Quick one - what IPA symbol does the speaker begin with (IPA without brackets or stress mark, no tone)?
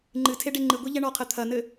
ŋ͡ǃ